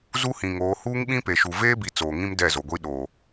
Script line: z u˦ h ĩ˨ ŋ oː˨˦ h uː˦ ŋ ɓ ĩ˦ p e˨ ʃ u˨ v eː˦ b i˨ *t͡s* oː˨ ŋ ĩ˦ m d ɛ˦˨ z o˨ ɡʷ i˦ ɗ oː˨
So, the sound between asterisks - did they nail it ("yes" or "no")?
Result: yes